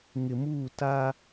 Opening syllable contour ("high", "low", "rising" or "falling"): low